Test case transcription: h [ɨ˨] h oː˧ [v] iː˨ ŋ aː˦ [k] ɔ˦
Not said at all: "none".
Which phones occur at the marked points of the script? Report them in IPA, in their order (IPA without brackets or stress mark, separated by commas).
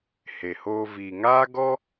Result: e˨, v, ɡ